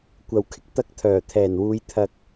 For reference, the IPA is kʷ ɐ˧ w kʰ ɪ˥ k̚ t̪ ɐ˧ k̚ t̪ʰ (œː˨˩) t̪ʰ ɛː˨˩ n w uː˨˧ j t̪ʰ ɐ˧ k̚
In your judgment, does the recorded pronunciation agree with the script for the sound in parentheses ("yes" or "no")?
yes